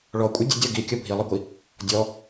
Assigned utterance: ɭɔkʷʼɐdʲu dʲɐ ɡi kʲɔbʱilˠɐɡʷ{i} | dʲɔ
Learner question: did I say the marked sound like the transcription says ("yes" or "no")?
yes